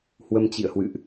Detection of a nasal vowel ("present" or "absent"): absent